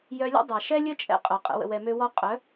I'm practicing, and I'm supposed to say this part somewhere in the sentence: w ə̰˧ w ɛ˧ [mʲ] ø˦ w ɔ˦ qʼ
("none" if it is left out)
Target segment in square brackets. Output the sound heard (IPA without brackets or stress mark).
m